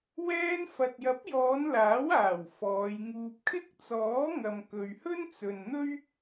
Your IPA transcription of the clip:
wɛː˧nfɐ˨t̚jɐ˨˥p̚jɔː˨˧n laː˨˥waː˨˩w fɔː˨˧jŋuː˧p̚ kʰɪ˥k̚t͡sɔː˨˥ŋɐ˨m kɵ˨ɥhɵ˥nt͡sɵ˨n n̪ɵ˥ɥ

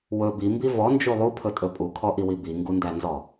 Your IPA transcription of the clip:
wɵ bimbi vɔnd͡ʒu lˠupʰɵtʼɵ pʼukʰɔʔiwi biŋɡundænzɔ

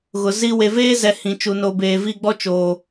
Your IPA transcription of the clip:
ɣʊ˨zi˦ we˨veː˦zɛ˨ hĩ˨t͡ʃu˨ no˨beː˨vi˦˨ ɡ͡bɔ˦t͡ʃoː˨

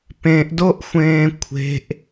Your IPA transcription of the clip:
pẽʔdoʔxʷẽː kʷʰe̤ʔ

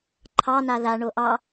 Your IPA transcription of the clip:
ǃʰɑ naða ɳoʔɑ

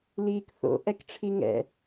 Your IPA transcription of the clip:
liːkθo̰ ʔɛkʈ͡ʂʰiŋɛ̰

